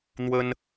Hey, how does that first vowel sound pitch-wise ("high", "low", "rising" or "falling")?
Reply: high